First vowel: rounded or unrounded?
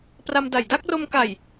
unrounded